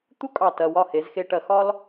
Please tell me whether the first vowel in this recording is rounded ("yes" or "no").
yes